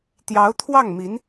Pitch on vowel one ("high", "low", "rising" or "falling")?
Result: rising